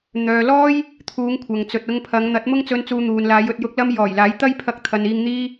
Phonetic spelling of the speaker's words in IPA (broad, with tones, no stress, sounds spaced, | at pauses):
n̪ œː˨ l ɔː˥ j | t̪ʰ uː˨˧ ŋ kʷʰ ɐ˨ ŋ t͡s ɵ˨ t̚ ʊ˧ ŋ pʰ ɐ˨˧ ŋ n̪ ɐ˨˥ t̚ m ʊ˥ ŋ t͡s ɵ˧ n t͡s uː˧ n̪ uː˨ n l aː˨˧ j ɵ˨ t̚ j ʊ˨˥ k̚ l ɐ˧ m j ɔː˨˩ j l aː˨˥ j t̪ ɐ˥ j pʰ ɐ˧ k̚ t̪ʰ ɐ˨ n iː˧ ŋ n̪ iː˥